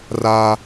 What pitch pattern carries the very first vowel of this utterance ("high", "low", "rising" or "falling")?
high